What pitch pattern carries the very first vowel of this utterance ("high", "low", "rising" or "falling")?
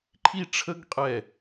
high